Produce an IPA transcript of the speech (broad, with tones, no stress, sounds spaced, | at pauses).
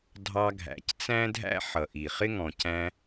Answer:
dʱ ɑ˧ ɡʱ æ̰˩ c t͡s æ̃˥ dʱ æ̰˥ ħ ʌ˩ ʔ i˩ χ ɪ˥ ŋ ɔ̃˩ c æ̃˧